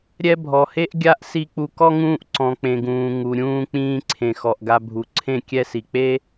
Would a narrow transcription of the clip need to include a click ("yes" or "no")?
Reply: yes